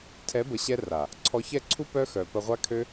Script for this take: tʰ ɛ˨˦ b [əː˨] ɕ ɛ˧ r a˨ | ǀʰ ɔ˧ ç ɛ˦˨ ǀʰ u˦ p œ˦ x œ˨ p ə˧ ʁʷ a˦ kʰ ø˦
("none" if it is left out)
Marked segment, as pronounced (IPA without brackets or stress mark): ə˨